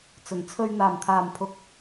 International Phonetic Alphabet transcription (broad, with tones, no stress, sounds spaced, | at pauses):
t͡s ɵ˨˩ n t͡sʰ ɵ˧ ɥ n̪ aː˨˩ m t̪ʰ aː˨˩ m pʰ ʊ˨ k̚